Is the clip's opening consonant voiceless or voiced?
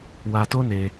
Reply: voiced